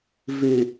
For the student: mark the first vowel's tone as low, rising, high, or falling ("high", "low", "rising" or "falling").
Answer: low